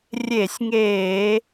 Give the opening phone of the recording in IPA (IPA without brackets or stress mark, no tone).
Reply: rʲ